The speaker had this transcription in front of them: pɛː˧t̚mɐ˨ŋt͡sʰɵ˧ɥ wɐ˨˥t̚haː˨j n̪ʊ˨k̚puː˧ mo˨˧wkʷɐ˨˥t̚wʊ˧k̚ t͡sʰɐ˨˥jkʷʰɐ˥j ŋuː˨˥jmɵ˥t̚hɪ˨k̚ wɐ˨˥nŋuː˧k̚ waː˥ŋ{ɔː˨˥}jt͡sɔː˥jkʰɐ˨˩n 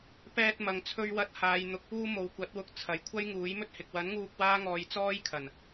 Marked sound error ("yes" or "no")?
yes